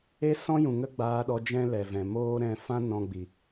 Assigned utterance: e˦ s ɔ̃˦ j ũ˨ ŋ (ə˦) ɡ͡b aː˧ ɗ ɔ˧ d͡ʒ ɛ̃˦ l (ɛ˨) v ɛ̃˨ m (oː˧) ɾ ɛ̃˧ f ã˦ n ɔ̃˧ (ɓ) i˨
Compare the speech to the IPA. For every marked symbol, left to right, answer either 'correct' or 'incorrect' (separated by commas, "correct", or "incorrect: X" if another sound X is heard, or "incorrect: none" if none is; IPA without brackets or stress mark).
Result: correct, correct, incorrect: oː˦, incorrect: ɡ͡b